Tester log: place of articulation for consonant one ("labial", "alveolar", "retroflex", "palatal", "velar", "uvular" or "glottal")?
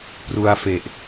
labial